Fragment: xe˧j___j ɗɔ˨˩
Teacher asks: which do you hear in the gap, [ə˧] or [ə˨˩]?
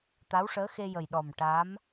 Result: ə˨˩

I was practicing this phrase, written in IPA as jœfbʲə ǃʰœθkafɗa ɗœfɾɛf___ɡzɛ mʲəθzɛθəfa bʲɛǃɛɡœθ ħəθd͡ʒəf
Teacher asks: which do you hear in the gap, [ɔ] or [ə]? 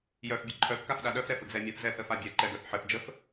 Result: ə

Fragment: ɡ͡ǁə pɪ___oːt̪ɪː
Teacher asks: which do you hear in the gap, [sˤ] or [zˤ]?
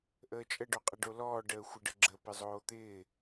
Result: zˤ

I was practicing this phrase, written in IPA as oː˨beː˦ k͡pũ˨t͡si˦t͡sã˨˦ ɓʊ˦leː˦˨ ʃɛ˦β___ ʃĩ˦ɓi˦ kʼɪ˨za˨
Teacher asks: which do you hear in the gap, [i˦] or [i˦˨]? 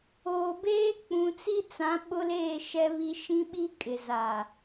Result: i˦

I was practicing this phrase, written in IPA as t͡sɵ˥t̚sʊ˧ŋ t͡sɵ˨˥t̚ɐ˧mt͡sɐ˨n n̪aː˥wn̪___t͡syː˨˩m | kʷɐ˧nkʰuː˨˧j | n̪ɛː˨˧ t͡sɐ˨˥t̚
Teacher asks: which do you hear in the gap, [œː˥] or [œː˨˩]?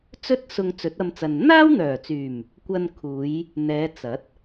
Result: œː˨˩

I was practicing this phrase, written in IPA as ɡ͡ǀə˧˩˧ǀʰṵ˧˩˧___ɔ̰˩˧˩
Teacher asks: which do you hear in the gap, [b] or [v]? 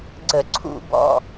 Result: b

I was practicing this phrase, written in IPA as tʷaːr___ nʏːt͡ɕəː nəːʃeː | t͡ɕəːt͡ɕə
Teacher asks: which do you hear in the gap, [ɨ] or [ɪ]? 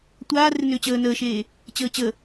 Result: ɪ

